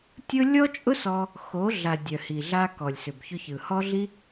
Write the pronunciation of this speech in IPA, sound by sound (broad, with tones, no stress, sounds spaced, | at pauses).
tʲ ʊ˦ lʲ ɔ˦ t͡ʃʼ ʊ˦ s ɔ˧ | x o˨˦ ɮ a˨ dʲ œ˨ h i˨ ɮ a˧ k ɔ˨ lʲ s ʏ˨ b ç ʊ˧ ç ɯ˨ h ɔ˦ ɮ i˦